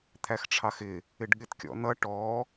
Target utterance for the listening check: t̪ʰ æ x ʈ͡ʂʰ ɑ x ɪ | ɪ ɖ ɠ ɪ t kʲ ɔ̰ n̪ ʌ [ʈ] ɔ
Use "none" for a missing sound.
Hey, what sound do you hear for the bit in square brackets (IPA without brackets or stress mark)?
ʈ